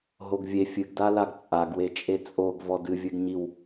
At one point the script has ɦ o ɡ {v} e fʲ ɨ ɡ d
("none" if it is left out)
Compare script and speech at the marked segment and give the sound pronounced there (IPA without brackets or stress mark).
vʲ